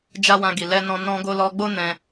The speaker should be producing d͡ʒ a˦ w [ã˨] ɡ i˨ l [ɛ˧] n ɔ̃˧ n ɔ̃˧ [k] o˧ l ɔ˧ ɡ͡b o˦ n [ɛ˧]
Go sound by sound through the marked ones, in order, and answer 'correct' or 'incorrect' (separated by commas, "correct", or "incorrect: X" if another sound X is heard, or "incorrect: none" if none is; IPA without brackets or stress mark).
incorrect: ã˧, correct, incorrect: ɡ, incorrect: ɛ̃˧